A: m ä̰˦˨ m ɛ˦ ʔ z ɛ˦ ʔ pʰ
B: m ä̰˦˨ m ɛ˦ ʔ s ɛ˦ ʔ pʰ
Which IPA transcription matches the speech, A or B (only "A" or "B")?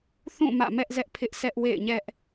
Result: A